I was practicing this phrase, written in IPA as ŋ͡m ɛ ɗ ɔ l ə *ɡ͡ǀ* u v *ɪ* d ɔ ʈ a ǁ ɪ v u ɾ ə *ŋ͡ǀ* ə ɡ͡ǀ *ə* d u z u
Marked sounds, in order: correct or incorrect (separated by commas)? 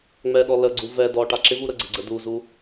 correct, incorrect, incorrect, correct